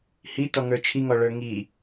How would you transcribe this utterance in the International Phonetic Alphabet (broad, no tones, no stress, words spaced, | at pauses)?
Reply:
hitɔŋə˞ t͡ʃʰiŋɔɭə˞ ŋi